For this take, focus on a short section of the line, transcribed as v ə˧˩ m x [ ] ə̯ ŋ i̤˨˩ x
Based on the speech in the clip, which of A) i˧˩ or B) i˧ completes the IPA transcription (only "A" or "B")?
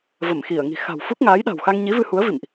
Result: A